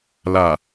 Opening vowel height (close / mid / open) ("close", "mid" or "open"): open